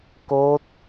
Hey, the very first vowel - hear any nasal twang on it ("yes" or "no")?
no